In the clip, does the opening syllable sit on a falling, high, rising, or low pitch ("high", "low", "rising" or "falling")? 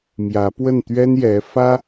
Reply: rising